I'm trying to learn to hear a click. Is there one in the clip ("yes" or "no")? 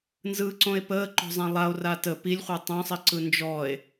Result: yes